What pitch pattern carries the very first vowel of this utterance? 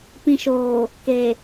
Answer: low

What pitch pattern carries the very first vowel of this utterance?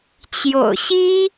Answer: low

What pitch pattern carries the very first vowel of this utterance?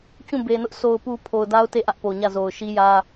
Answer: falling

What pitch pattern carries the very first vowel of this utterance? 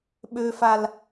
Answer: high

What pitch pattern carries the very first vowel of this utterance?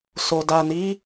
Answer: low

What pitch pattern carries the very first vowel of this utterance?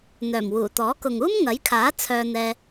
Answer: low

